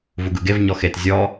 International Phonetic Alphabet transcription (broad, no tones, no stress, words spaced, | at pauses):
vuɡɯɡevɲɔ xet zʲɔ